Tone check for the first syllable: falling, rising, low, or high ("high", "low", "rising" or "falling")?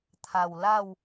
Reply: low